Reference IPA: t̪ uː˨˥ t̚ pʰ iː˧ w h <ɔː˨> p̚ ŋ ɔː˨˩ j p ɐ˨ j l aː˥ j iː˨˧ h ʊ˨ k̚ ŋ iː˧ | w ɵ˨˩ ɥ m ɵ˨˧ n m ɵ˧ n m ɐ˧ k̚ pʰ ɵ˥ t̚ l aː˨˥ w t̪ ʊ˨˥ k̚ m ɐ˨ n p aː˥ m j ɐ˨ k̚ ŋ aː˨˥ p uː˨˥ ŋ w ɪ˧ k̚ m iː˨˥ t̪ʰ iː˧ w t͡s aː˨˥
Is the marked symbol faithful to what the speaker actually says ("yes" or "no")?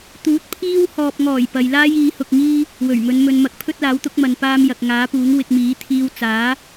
yes